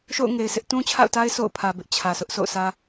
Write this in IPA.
ʃ o̰˦˨ ʊ̯ ŋ e˨ ɪ̯ sʰ ɪ˦ ʔ t ũ˦ t͡ɕʰ a̰˦˨ ʊ̯ t a˦ ɪ̯ s o̰˦˨ ʊ̯ pʰ ä˨ b ɪ˦ ʔ t͡ɕʰ ä˨ s ʊ˦ ʔ s o̰˦˨ ʊ̯ sʰ ä˦

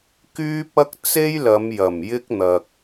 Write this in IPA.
k yː˥ p̚ ɐ˥ k̚ t͡s e˥ j l ɐ˨˧ m j ɐ˨˩ m j ɪ˥ k̚ n̪ ɐ˨ k̚

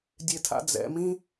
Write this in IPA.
dʲ e tʰ a̰ d͡z ɛ̰ m ĩ

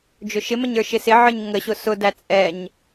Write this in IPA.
d͡ʒ ʊ ʃ ɪ m ə ɲ ə˞ ʃ ɪ s ɪ ʕ ə˞ ɲ ŋ ə ɕ ʊ s ʊ d æ t͡sʼ ɛ ɲ

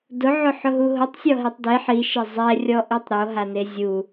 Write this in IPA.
d ʊ ʕ ʊ ħ ʊ ɦ u ɦ ʊ tˤ sʲ ɔ ɦ e tˤ d e ħ i ʃ e zˤ ɛ rʲ ɔ ʔ i tˤ ɾ o ɦ a n e zʲ u

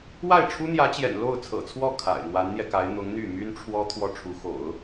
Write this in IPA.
w a˥˩ ɪ̯ ʈ͡ʂʰ u˥ n̪ j ä˧˥ t͡ɕ j ɛ̰˨˩ n l o˥˩ ʊ̯ t͡sʰ ɤ̰˨˩ t͡sʰ w ɔ˥˩ kʰ a̰˨˩ ɪ̯ n̪ w a˧˥ n n̪ j ɛ˧ k a˧˥ ɪ̯ n̪ ʊ˧˥ ŋ n̪ y˥˩ m y˥ n ʈ͡ʂʰ w ɔ˥ t̪ʰ w ɔ˥˩ ʈ͡ʂʰ u˧˥ x o̰˨˩˦ ʊ̯

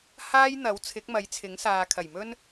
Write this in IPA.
h aː˥ j n̪ ɐ˨˥ w t͡sʰ ɪ˨˥ k̚ m ɐ˨˥ j t͡sʰ ɪ˨˥ ŋ s aː˨ kʰ ɐ˨˩ j m ɵ˥ n

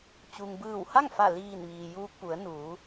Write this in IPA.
t͡ɕ u˩ ŋ b ɯː˧˩ w h a˥˨ ŋ f a˧˩ l iː˧˩ n ʋ iː˩ j uː˧ k̚ p u˩˧ ə̯ n uː˩˧

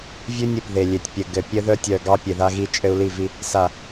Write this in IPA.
vʲ ʉ˦ nʲ ɘ˨ p ð e˨ lʲ e˨ tʲ pʲ ɘ˨ ɡ ɘ˨ pʲ ɘ˦ ð œ˦ tʲ œ˨ ɡ ɑ˦ pʲ e˨ ð a˦ ɣ i˦ t͡ʃʼ ɘ˦ u̯ l i˦˨ v i˦ | s a˨

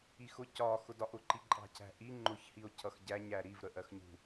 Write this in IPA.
i x ʊ c ɒ x ʊ d ɒ ʔ ʊ ǃ i ǃʼ ɑ̤ cʰ æ̤ ʔ i ŋ͡ǃ ʊ ç h i o̯ cʰ ʌ x ɟ æ ɲ æ ɾ i v ɾ ə ʔ ɜ x ɲ ṳ

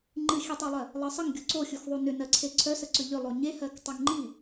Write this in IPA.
ŋ͡ǃ ɨ xʲ ɨ tˤ u lˠ ɜ | lˠ ɜ sˤ ə ŋ ɡʲ o ǀ o xʲ u x ðˤ u n ʏ n ɜ ǀʰ e ǀʰ œ s ə ǀ ʏ ʎ ʏ lˠ o ɲ e h ɜ k tˤ o ŋ ŋ͡ǃ i

